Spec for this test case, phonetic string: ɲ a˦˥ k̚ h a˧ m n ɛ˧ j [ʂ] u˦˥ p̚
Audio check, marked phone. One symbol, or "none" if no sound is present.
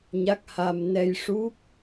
ʂ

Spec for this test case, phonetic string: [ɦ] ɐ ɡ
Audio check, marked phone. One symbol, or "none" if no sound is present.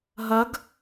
ɦ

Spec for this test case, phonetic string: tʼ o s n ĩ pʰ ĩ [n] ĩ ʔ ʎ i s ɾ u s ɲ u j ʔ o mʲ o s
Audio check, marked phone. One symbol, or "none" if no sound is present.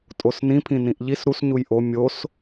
n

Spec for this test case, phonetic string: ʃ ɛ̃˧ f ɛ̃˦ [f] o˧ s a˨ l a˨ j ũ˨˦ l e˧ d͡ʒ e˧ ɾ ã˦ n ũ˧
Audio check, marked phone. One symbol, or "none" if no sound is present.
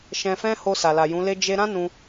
h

